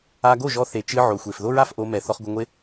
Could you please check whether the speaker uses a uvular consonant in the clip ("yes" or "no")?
yes